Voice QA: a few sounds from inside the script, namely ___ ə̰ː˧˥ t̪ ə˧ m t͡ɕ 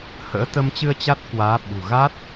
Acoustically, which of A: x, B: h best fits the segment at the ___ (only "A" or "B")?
B